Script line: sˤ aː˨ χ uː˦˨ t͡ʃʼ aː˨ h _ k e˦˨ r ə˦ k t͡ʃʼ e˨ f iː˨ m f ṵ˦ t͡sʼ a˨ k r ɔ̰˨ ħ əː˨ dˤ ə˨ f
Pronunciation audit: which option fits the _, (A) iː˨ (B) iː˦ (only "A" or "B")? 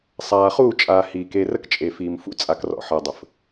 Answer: A